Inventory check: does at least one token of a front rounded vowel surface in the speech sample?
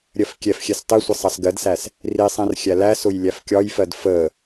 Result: no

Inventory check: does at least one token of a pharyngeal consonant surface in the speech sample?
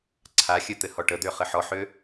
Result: yes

